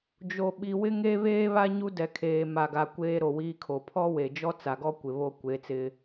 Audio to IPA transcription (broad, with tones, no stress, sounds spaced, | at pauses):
d͡ʒ o˨ ɓ i˨ w ɪ˦ ŋ e˦ β eː˦ β a˦ ɲ u˦ d ɛ˨ kʰ eː˨ m a˨ ɡ a˨ kʷ eː˦ ɾ o˨ w iː˦ kʰ o˨ pʰ ɔ˦ w e˨ d͡ʒ ɔ˦ t͡s a˨ ɡ ɔ˦ kʷ ɪ˨ β o˦ kʷ e˨˦ t͡s ɪ˦